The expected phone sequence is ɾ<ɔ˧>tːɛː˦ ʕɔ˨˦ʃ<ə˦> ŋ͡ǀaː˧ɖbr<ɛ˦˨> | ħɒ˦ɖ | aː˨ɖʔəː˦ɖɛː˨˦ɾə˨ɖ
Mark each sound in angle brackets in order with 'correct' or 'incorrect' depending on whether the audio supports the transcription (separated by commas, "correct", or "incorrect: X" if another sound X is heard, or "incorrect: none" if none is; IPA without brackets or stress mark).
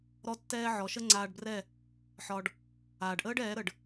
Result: incorrect: ɔ˦, correct, correct